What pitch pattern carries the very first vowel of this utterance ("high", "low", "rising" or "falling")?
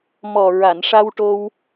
low